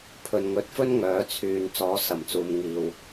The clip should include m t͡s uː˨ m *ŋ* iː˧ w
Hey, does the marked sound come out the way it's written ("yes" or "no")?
yes